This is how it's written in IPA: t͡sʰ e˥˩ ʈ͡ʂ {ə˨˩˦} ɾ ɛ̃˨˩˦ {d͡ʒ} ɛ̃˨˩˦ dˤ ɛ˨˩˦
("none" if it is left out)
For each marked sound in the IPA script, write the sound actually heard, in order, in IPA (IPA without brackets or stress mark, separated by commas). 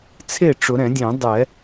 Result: ʊ˨˩˦, dʲ